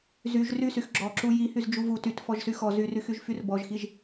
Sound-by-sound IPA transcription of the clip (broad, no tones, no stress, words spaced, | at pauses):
zyʒ rysyx ɡ͡ǁɔǁu jihyz d͡ʒuvu tyt fɔʒsyxɔ zyryxyʒ fyrbɔʒxiʒ